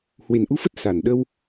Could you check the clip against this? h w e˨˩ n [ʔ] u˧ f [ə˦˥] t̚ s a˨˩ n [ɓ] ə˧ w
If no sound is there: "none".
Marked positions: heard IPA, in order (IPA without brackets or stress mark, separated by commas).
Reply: ʔ, ə˦˥, ɗ